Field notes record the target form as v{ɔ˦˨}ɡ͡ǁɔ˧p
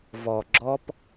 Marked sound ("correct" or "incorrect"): incorrect